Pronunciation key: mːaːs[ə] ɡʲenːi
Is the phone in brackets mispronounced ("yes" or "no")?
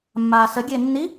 no